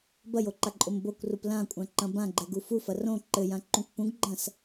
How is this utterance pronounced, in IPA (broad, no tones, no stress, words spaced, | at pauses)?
bɐjoǃaǃʼom bokʷrup lãkʷʼãǃɐ̃ bãɡ͡ǃɛɡu fufɐ rõ ǃɘjãǃũkʷ pũɡɡ͡ǃɐ̃s